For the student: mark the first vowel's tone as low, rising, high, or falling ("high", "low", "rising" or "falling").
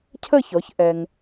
falling